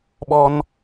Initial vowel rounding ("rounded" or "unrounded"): rounded